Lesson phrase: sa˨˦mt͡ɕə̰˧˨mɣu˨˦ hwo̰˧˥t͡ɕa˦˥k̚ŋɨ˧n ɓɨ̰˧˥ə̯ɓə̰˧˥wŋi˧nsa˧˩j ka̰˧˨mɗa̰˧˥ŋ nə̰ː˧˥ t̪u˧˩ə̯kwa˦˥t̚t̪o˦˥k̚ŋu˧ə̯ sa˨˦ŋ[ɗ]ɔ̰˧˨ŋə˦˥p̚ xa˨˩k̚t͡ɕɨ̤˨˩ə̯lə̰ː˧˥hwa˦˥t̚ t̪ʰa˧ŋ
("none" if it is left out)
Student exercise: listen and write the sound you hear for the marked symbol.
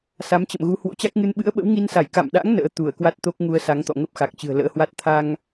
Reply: t̪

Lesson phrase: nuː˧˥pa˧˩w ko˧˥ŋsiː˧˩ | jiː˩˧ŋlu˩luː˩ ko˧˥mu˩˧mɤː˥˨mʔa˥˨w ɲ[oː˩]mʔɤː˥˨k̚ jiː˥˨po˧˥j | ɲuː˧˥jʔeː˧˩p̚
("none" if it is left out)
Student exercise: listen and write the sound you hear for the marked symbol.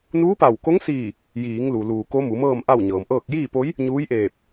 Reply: ɤː˩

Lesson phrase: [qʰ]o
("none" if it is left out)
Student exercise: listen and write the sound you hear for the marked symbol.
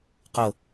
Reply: q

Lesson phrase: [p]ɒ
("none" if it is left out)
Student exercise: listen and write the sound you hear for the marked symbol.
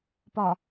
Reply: p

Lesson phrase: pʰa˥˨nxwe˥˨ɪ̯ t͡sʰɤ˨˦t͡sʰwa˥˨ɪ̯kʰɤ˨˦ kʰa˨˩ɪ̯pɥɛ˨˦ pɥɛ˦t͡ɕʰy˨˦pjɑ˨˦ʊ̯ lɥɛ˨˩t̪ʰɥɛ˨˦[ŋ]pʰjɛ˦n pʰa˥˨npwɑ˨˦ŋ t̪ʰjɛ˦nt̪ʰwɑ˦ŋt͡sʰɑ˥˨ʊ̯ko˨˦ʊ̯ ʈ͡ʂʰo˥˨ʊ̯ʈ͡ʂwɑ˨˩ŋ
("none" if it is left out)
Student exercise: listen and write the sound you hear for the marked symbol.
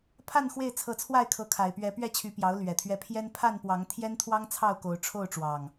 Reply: none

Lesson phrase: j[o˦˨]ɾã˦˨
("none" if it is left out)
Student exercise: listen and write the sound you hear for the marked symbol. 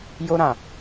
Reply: o˦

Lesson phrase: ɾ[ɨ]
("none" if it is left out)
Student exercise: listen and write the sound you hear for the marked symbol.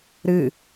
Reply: ɨ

